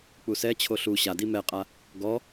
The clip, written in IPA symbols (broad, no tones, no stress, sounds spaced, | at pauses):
k͡p u s ɛ t͡ɕʰ o ɬ u ɕ a d i m ɛ qʼ a | ɡ ɔ